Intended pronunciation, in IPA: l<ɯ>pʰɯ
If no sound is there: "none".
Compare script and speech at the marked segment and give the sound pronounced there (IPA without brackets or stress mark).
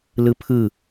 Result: ɯ